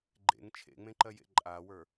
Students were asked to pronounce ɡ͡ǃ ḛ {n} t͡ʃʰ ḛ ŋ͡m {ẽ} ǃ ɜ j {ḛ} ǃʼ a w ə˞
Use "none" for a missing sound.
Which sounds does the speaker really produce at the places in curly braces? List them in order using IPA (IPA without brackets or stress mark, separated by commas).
ŋ, ẽ, ḛ